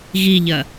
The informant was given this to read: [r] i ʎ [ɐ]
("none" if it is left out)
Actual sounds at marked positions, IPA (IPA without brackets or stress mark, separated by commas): ɣ, ɐ